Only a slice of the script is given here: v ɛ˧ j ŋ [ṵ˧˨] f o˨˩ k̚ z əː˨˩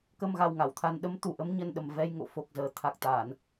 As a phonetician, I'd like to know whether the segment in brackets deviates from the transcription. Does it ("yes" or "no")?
yes